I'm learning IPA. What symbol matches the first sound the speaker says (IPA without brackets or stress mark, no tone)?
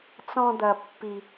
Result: t͡s